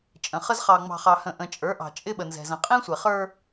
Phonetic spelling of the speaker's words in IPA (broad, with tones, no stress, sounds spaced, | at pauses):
t͡ʃʼ ə̃˨ χ ə˦ z χ ɑ˨ ŋ͡m ɑ̤˨ χ ɑ˨ h ə̃˨ ʔ ə̃˨ t͡ʃʼ ə˞˨˦ ʔ ɑ̤˨ t͡ʃʼ ɪ˦ ɓ ə˨ n z ɛ̤˨ z ə̃˨ qʼ ĩ˦ sʷ ɛ˨ χ ə˞˦